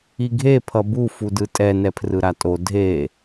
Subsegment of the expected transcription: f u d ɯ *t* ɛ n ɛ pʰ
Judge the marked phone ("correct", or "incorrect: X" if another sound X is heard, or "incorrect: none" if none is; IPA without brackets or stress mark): incorrect: tʼ